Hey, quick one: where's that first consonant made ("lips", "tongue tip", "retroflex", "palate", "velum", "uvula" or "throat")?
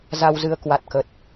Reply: tongue tip